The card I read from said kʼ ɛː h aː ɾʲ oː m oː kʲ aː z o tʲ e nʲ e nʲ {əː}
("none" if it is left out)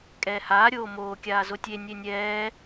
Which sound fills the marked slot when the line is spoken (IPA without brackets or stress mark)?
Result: ɛː